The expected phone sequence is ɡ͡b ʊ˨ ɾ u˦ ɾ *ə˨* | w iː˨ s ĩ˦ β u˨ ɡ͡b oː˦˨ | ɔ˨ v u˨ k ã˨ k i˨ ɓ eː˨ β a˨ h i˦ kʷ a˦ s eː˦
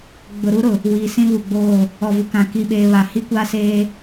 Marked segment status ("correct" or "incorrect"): incorrect